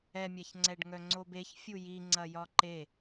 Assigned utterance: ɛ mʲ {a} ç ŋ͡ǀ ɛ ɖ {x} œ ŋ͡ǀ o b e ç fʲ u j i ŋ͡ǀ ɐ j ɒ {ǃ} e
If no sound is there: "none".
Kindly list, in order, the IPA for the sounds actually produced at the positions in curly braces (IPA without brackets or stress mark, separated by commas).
a, ŋ, ǃ